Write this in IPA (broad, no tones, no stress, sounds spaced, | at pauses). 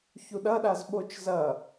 ç u ɗ ɐ ɗ a z ɓ o t͡ʃ z ɐ